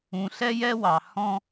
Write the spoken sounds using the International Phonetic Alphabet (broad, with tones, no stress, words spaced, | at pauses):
ũ˨ɬɛ˦jɛ˦wɑ˨ hɔ̃˦